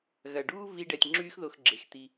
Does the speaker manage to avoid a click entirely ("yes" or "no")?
no